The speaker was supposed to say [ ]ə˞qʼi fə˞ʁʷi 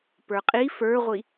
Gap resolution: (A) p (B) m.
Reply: A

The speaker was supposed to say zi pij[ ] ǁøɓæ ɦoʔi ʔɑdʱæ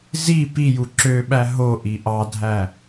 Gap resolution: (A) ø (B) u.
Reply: B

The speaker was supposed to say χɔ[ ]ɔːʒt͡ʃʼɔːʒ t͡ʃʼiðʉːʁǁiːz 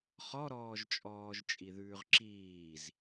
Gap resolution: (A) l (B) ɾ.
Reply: B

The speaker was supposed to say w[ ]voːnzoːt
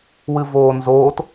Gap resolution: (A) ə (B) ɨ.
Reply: B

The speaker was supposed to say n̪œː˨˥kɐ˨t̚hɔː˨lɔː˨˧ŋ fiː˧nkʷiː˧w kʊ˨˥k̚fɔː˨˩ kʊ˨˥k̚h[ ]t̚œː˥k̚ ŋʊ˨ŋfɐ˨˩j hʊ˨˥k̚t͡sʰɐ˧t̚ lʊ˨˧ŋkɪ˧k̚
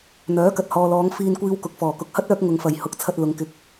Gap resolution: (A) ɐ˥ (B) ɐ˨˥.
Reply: A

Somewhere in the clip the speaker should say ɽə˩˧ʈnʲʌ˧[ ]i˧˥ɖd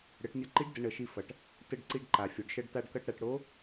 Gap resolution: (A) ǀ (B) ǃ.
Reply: B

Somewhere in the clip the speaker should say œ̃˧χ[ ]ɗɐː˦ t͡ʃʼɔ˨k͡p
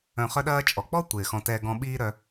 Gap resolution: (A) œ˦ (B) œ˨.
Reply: A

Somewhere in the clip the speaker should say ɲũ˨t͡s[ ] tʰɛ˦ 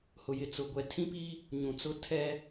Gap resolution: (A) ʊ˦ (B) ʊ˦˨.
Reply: A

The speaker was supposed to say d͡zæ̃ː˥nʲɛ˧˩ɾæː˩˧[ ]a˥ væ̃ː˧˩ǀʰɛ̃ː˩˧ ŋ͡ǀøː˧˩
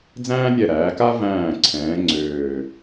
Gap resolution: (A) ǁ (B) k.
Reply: B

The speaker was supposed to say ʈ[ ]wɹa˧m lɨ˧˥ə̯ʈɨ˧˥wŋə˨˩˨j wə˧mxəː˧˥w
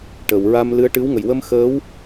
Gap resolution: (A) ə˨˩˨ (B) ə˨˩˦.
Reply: A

